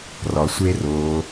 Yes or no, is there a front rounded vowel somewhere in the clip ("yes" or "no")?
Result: no